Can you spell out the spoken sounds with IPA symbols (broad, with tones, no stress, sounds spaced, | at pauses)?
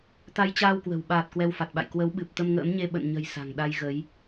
t̪ a˧ j t͡ɕ aː˧ w k w ə̤˨˩ w ɓ aː˨˩ t̚ k w ɛ˧ w f a˨˩ t̚ ɓ a̰˧˨ j k w ə˨˦ w ɓ ɨ˨˩ p̚ t̪ ə˧ m ŋ ə̰ː˧˥ m ɲ e˧ ɓ ə̰˧˨ n ɲ ə̤˨˩ j s a̤˨˩ ŋ ɗ a˧ j ɣ ə˨˦ j